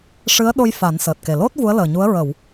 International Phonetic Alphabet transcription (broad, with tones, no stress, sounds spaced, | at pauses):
ʂ ɨ˧˥ ə̯ ɗ o˧ j f a˨˩˦ n s əː˨˩ t̚ k e˨˩ l o˦˥ t̚ v u˧˥ ə̯ l əː˨˩ ɲ u˧˥ ə̯ ɹ ə˨˩˨ w